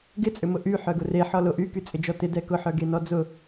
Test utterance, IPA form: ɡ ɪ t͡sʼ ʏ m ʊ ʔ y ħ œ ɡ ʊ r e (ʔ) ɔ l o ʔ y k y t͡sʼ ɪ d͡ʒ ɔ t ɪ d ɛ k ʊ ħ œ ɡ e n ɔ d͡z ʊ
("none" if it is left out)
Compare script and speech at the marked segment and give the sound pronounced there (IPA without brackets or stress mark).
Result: ħ